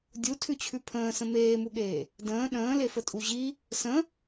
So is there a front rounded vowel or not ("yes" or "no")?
no